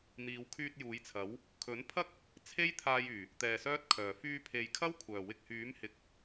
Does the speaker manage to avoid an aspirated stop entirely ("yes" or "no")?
no